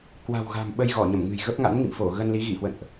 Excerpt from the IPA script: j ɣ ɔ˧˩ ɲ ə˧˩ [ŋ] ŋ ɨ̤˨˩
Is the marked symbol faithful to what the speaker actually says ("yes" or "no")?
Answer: no